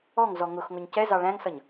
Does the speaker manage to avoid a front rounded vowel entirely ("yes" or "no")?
yes